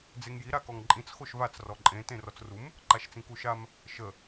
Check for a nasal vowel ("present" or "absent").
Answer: present